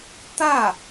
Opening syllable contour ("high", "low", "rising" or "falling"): falling